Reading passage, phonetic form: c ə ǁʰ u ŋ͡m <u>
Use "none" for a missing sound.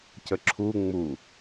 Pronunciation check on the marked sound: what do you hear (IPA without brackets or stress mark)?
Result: u